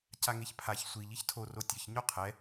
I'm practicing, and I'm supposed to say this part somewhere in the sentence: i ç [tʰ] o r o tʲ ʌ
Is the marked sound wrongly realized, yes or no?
no